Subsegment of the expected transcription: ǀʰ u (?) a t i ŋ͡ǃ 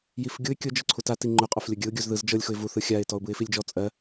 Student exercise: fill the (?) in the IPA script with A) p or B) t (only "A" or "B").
B